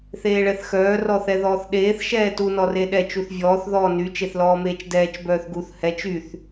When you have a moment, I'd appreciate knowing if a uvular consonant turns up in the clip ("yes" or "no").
no